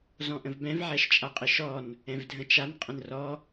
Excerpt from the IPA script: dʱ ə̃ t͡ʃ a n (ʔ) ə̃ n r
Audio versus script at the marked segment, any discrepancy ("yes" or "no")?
yes